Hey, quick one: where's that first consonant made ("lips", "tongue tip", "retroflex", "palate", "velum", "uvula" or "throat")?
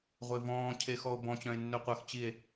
uvula